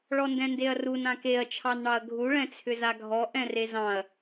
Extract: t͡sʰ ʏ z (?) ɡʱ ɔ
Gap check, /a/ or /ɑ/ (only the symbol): a